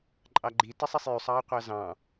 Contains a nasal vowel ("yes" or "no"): yes